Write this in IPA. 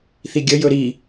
θiɡʲəjɵ ɾi

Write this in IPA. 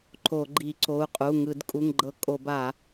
ǃo˧˩˧ɡ͡ǃi˧˩˧ ǀo˩˧˩u̯qʼu˩˧˩ŋɯ˧˩˧d kʼu˩˧˩ŋɡ͡ǃɤ˧˩˧ kʼo˧˩˧ba˧˩˧

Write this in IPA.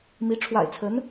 mi˧˥ ʈ͡ʂʰwa̰˨˩ɪ̯t͡sʰə˧˥n

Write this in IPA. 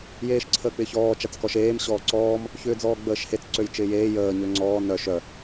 jeːʃǀʰəːk͡pɪçɔː t͡ʃat͡skɔʃeːm ɕɔːǀɔːm | çʏːd͡zɔːɡ͡bəːʃhet͡s ǀøjt͡ʃɪːjeː jəː ɲøŋ͡ǀɔː nœʃ œ

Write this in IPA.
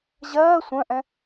ʑɜː sʷœ̃ʔɛ̃

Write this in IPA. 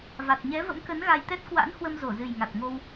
va˨˩t̚ɲɛ˨˦və̰˧˥mkə˨˦n ɣa˧jt̪ɛ˦˥t̚ kwa̰˧˥nhwə˧m zo˧˩zɨ˨˩jŋa˨˩t̚ŋo˧w

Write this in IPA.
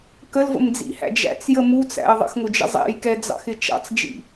kəlvə̰md͡zḭhæ̰ d͡ʒæ̰t͡sjə mut͡sæ̰ə̯ ðˤə̰xŋʊd͡ʒə̰ zˤɛ̰jkɛd͡zɑ̰xɪ t͡ʃɑ̰t͡sd͡ʒḭ

